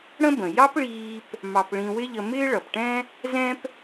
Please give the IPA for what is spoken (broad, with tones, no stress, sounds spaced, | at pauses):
ɽ ə̃˥ b ə̃˩ j ɑ˥ p ɭ iː˧ p | m ɑ˧ p ɭ ĩ˧ w ɪ˥ ʎ ə˧ m ɪː˥ ɭ ʌ˩ p ʈ ɛ̃˥ | z ɛ̃˥ p